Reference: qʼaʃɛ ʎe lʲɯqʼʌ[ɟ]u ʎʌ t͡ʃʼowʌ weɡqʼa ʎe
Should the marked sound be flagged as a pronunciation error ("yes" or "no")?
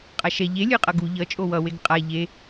yes